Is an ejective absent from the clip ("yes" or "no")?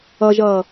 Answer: yes